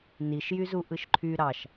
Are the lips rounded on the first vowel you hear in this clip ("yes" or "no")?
no